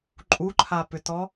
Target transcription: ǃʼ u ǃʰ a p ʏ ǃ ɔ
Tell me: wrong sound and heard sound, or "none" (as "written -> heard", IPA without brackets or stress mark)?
ǃ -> t